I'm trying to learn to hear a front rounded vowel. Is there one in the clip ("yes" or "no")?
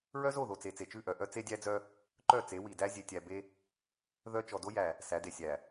yes